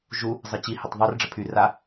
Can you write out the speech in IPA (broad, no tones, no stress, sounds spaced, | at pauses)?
ʒ u | zˤ ɘ t͡ɕ i h ɘ tˤ ðˤ ɘ r ɖ͡ʐ ə pʰ y r a